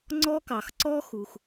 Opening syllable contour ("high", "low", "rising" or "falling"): high